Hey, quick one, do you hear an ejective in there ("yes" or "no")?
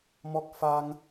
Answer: no